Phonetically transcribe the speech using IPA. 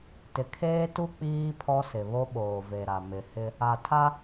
t ɪ˨ kʰ eː˦ t u˦ k͡p iː˦ pʰ ɔ˦ s ɪ˨ β o˦ ɓ oː˨ v e˨ ɾ a˨ m ɪ˨ h ɪ˦ | a˨ tʰ a˦

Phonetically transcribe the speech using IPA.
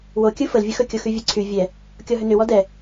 w o kʲ ɯ f ə l vʲ ɯ x ɵ kʲ o x y vʲ e ǀʰ y vʲ ɛ | kʲ ɔ ɦ ʏ n ʏ w ɔ d ɛ

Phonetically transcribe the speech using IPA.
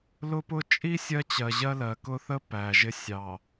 l ʊ˦ p ʊ˦ t͡ʃʼ i˦ sʲ ɜ˦ t͡ɕ ɜ˨ ʑ ɜ˦ l ɜ˨ k ʊ˦ θ ə˦ p æ˨ ʒ ɪ˦ sʲ ɑ˨

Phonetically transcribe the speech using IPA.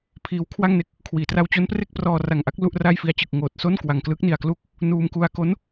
pʰ iː˦˥ w kʰ w a˥˩ ŋ n e˦˥ k̚ | kʰ w iː˩˦ t r a˧ w t͡ɕ o˦˥ n p r e˥˩ k̚ p r ɔː˧ r a˨˩ ŋ ʔ a˦˥ k̚ l u˥˩ ʔ r aː˥˩ j f i˧ a̯ t͡ɕ ɯ˨˩ k̚ ŋ oː˨˩ t̚ s o˥˩ n k w a˨˩ ŋ k l ɯː˦˥ k̚ n i˨˩ a̯ k l u˥˩ k̚ | n uː˧ m k u˧ a̯ k o˦˥ n

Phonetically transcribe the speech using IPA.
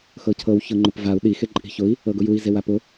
x ɤ cʰ ɤ w ç ɤ ŋ͡ǃ ʊ p v a u̯ ɗ i x e ǃʼ i̤ ç ʊ i̯ | ɤ ɡ ʊ j u i̯ z e w a p ʊ

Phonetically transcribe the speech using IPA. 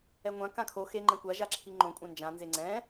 ɛ ŋʷ ã k ã kʰ o x e ŋ͡ǃ ɛ̃ kʷ a ʒ a ǁʰ i ŋ͡ǃ õ kʷʼ ã n d͡ʒ ã n z e ŋ͡ǀ ɛ̃

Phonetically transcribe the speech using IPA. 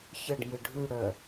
ç ə ɖ m ɯ ɖʱ ʉ ɽ œ

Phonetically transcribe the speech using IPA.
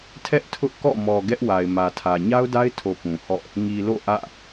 tʰ ɛ˦ ʔ tʰ ʊ˦ ʔ k ɔ̰˦˨ m ɔ˨ ɡ ɛ˦ ʔ w a˨ ɪ̯ m ä˨ tʰ ä˨ ɲ a˦ ʊ̯ d a˦ ɪ̯ tʰ o˨ p ũ˨ h ɔ̰˦˨ | ŋ i˨ l o̰˦˨ ʔ ä̰˦˨

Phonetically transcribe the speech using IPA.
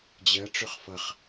d͡ʑ ɜ ʈ͡ʂ ɵ χ f ʌ χ

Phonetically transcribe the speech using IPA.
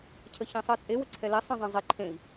cʰ ə ç ẽ sˤ ɜ t͡sʼ e w ə ǀʰ ɛ l e sˤ ĩ zˤ ẽ zˤ i ǃʰ ẽ i̯

